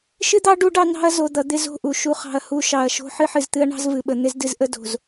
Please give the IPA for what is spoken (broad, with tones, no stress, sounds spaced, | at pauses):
ʃ ɨ˦ d̪ ɑ˦ ɖ u˦ ɖ ɑ˦ n ɑ̤˦ ɐ̯ z o˨ d̪ ʌ˨ d̪ ɪ˦ z o̤˦˨ ʔ u˨ ʃ u˨ χ ɑ̤˨ ɐ̯ h u˨ ʃ ɑ˨ ɐ̯ ʃ o̤˦ ħ ɨ˦ ħ ɨ˨ z t̪ ɨ˦ ɐ̯ ɳ ɑ̤˦ z v ɨ˨ ɓ ə˨ n̪ ɪ˦ z d ɨ˦ z ʔ ə˦ d o̤˨ z